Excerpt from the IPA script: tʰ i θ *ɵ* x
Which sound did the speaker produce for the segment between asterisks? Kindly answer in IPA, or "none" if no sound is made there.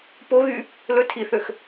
ø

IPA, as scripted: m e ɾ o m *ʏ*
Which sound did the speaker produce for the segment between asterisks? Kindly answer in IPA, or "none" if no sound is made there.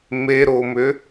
ʏ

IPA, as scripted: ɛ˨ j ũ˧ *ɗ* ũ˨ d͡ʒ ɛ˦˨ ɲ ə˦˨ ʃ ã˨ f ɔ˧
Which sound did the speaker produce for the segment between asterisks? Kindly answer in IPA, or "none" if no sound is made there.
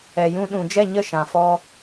ɗ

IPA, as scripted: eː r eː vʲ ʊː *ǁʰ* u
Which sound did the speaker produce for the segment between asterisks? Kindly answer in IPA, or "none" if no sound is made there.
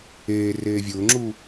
ŋ͡ǁ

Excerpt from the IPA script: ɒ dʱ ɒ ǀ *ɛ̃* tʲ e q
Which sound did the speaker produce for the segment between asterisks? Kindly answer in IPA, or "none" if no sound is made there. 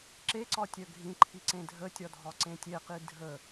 ẽ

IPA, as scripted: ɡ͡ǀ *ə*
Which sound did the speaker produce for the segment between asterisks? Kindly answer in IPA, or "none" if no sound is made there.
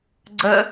ə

